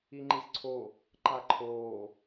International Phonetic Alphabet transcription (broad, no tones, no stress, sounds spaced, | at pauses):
i ŋ͡ǃ i z ǀʰ o | ǃ a ǃʰ oː